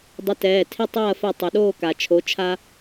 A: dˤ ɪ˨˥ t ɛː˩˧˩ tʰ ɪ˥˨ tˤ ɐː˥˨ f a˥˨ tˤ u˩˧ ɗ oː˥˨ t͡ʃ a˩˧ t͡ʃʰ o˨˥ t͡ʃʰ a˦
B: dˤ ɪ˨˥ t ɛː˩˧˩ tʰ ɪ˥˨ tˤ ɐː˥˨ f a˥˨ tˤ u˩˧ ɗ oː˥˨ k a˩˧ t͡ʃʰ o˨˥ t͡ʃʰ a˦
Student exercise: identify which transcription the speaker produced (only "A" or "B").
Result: B